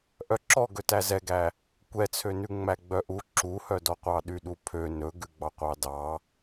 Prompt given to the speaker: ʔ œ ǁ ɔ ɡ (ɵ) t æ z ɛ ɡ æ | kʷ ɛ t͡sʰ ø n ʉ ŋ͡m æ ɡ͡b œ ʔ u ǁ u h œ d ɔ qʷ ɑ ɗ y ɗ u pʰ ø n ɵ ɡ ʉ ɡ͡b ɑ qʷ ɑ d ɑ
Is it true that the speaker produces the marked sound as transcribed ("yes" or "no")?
yes